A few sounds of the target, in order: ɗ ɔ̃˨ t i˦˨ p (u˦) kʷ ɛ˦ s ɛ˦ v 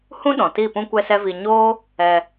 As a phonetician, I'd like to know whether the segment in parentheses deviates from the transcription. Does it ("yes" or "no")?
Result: yes